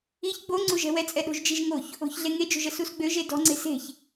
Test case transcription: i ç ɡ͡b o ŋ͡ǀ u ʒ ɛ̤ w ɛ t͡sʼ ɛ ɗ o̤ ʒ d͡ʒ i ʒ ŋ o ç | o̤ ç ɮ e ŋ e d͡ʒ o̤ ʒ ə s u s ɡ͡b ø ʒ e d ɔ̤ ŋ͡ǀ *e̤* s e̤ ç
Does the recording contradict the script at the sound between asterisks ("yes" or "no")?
no